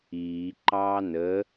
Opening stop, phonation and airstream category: click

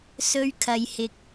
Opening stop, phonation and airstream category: aspirated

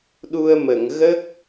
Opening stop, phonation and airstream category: implosive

